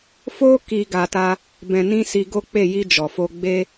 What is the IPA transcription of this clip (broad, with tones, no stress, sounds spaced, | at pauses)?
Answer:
f o˦ k i˦ ɡ a˧ t a˦ | b ɛ̃˧ n ĩ˦ s i˧ ɡ o˦ k͡p e˦˨ j i˧ d͡ʒ ɔ˨ f o˧ ɡ͡b e˦